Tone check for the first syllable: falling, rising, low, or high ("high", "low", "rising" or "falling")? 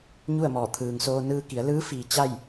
falling